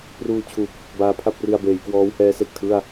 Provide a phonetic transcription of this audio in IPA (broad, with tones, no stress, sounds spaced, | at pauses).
p r uː˧ t͡ɕʰ u˨˩ k̚ | b aː˦˥ pʰ a˥˩ p̚ r i˧ a̯ b eː˩˦ j k w ɔː˦˥ w h ɛː˦˥ s e˨˩ k̚ tʰ ɯ˥˩ a̯